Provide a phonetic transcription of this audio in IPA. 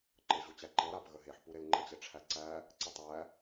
ǃ ɤ ʑ u t͡ɕ æ ǃ ɤ ɾ a p ɣ ə ɦ e ħ p u ɾ e l ŋ͡ǃ ə t͡ɕ e ʈ͡ʂʰ æ ǀ æ | ǀ ə tˤ æ

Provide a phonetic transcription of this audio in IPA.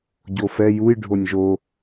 ɟ o f ɛ j u j ɖʱ o nʲ ʒ o

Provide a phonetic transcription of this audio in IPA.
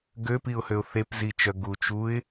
ɡ ø p i ʊ̯ h ø ʊ̯ θ e p z i t͡ʃ œ ɡ u t͡ʃ u ɪ̯

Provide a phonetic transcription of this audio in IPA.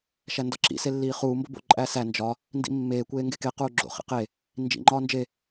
ʃ æ n d ɒ ǁ ḭ s e lː iː χ uː m b o b o̰ ǃʼ æ s æ n d͡ʒ ɒ | n d ḭ mː eː kʷ eː ŋ ɡ e k e q uː ɡ͡ǁ o̰ χ ḭ q e | n d͡ʒ ḭ ŋ͡ǃ ɒː n d͡ʒ e

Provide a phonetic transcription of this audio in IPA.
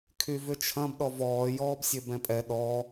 kʰ y v ʏ t͡ʃʰ ɐ̃ b ɗ ɔ v ɔː j ɔː b sʲ ø b ɛ̃ pʼ ɛ ɗ ɔ

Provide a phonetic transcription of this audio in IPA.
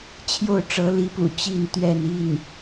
t͡ɕʰ j o˥˩ ʊ̯ ʈ͡ʂ ɤ˧˥ l i˧˥ p ṵ˨˩ t͡ɕ i˥˧ n t̪ ɥ ɛ˥˧ n i˥˩ n

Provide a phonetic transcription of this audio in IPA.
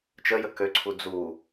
t͡ʃ ə j ə k ø ǀʰ u d͡z u

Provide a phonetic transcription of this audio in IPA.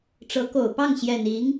ʈ͡ʂ ɤ˧˥ k o˨˩ ʊ̯ p ɑ˥˩ ŋ ɕ j ɛ˨˩ n i˧˥ ŋ

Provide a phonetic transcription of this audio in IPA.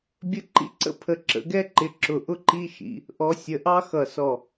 bʲ ə˥ ǃ ḭ˥ ǀ ə̰˥ pʰ ə˨˦ ǁ ə̰˨˦ ɡ ɛ˥ ǃ ɪ˨˦ ǁ ʊ˧˩ ʔ ʊ˥ ǃ i˥ ʃ ḭ˨˦ | ʔ ɔ˨˦ sʲ ə˩˧˩ ʔ ɑ˥ x ʌ˧˩ s ɔ˧˩

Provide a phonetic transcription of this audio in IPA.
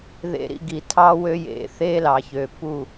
ð ḛ˧ ɾ ḭ˧ ɡ i˨ tʰ ɑ˦ w ø˦ j ḛ˧ θ e˦ l ɑ˨ ç ø˨ p u˦˨

